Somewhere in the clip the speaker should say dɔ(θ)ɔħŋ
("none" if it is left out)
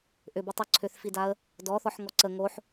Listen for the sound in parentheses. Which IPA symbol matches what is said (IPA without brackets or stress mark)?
θ